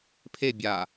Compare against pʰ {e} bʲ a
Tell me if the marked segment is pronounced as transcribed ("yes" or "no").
yes